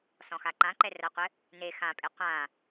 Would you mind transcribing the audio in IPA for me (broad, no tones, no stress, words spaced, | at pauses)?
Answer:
sɔ̃xaǃãǃɛ rɐqʷɘ | ne xãpʼe qʷã